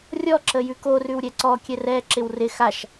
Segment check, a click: present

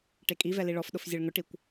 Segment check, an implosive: present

